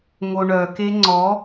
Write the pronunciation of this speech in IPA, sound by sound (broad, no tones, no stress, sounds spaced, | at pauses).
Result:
ŋ o ɳ œ k e ŋ͡ǀ ɔ